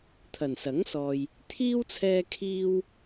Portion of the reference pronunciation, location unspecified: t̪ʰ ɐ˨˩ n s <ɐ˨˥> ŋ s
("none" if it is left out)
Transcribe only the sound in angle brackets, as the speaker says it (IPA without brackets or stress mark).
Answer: ɐ˨˥